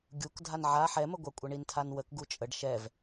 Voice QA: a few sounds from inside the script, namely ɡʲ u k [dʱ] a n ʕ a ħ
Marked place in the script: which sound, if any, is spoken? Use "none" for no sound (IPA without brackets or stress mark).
dʱ